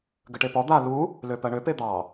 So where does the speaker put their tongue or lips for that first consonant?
velum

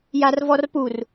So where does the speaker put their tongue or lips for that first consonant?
palate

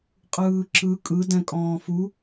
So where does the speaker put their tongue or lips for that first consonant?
uvula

